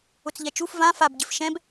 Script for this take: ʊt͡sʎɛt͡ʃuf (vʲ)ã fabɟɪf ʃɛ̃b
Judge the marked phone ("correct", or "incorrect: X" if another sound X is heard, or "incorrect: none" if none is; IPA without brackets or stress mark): incorrect: v